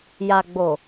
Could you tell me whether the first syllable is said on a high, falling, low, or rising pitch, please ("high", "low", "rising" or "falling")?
low